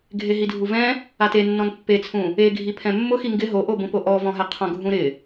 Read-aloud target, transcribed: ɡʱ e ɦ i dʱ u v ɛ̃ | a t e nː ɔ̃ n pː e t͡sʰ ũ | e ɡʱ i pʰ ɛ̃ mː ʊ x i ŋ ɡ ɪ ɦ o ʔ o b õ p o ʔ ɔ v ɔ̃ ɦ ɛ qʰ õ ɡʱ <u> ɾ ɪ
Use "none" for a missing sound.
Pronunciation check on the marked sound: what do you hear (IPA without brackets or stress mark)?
ũ